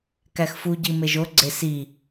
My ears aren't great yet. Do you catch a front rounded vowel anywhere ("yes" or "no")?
no